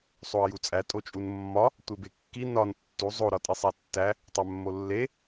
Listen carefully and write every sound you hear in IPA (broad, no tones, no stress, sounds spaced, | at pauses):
sˤ o ə̯ j u t͡sʼ æ tʼ o t͡ʃʼ u n mː ɒ | tʷ e b e kː i n ɒ n tː u zˤ o ɾ ɒ tʼ i sˤ æ tː æ | tˤ æ mː o lː e